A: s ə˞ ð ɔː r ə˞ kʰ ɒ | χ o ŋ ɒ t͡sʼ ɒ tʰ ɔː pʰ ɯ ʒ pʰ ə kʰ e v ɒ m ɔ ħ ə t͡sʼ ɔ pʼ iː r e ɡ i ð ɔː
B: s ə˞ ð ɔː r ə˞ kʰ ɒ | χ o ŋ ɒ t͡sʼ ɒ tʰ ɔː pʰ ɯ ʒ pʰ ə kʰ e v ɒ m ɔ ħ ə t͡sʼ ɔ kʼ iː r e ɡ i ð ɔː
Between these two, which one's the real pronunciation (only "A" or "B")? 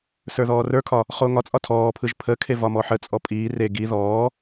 A